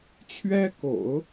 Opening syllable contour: high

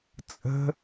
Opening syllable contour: high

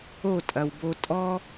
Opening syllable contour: falling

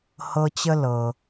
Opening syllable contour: high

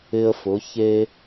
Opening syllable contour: high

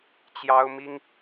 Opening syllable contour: high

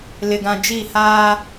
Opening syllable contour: low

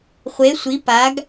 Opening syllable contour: rising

